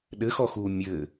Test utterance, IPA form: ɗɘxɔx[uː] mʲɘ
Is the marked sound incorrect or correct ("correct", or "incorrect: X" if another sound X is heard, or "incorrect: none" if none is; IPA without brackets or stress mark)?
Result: correct